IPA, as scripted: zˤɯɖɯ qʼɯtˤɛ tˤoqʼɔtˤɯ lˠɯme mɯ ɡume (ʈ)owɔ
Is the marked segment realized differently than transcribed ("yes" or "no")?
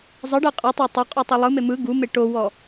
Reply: no